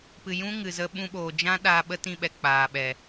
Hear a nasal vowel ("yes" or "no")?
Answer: yes